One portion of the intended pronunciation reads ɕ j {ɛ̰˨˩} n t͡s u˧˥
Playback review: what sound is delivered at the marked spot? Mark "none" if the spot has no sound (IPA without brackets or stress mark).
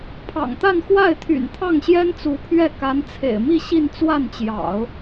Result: ɛ˥